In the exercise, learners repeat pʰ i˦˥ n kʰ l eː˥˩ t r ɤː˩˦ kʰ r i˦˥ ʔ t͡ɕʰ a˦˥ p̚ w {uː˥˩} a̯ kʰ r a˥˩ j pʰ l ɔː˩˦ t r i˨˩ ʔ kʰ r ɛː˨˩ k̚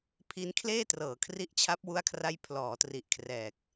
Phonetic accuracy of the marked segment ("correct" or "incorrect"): incorrect